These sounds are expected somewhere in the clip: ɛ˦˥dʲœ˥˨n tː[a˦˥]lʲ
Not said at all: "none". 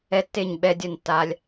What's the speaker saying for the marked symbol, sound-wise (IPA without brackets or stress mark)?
aː˦˥